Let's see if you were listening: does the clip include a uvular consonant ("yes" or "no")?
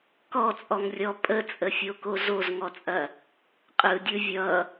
yes